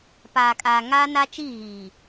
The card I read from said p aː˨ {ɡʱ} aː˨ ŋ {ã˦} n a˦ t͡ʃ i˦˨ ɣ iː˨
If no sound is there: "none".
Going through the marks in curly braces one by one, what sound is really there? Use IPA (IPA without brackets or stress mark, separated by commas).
kʼ, a˦